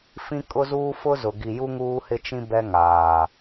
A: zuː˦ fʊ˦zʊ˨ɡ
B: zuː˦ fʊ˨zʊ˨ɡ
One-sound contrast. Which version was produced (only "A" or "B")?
A